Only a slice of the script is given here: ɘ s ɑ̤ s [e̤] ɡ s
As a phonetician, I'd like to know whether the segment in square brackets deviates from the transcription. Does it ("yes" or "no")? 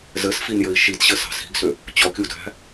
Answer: yes